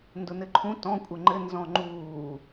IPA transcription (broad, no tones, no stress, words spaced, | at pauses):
ndʊnɘǃʰũ tɔ̃ kʷʼɘŋ͡ǃɘ nzɔ̃ŋ͡ǃuː